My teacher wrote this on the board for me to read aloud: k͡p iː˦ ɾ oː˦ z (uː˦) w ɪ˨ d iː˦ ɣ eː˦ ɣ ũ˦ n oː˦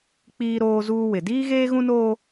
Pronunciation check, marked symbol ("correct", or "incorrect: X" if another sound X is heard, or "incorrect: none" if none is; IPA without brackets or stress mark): correct